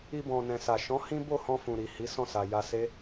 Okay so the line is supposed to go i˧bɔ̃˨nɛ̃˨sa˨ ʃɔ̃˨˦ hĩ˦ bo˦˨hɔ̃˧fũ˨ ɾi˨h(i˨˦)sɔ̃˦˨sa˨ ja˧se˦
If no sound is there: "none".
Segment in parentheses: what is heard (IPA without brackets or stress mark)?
i˨˦